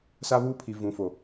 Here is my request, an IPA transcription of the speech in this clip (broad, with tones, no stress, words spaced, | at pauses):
sa˦βuː˦pʰi˨ vũ˨fo˨